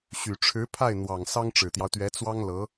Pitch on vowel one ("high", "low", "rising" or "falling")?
low